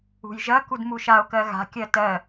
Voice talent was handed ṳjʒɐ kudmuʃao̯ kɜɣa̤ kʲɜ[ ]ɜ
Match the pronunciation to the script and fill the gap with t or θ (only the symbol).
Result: t